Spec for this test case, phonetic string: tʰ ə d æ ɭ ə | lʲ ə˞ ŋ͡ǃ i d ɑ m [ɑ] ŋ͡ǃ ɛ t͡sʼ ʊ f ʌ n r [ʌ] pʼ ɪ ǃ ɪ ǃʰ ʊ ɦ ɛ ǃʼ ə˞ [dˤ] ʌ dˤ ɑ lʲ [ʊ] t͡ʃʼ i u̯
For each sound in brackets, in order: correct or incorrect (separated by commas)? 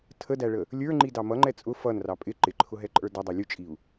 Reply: incorrect, incorrect, incorrect, incorrect